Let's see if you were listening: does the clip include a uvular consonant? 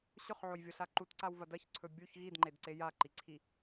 yes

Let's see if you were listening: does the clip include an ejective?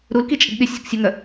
yes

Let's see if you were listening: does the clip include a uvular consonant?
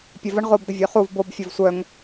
yes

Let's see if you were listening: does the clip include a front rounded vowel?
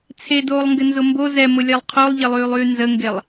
yes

